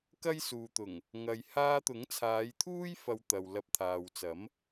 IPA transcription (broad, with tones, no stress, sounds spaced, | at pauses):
k ɐ˥ j s uː˨ t̪ ʊ˨˩ ŋ | ŋ ɐ˨ j h aː˧ t̪ ʊ˨˥ ŋ t͡sʰ aː˨˧ j t̪ʰ uː˥ j f ɐ˧ w t̪ ɐ˨ w l ɐ˧ p̚ t̪ʰ aː˨ w t͡s ɐ˨˥ m